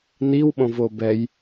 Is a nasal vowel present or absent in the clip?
present